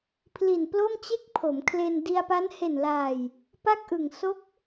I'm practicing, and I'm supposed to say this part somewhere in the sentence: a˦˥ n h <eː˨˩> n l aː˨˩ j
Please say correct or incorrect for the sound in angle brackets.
incorrect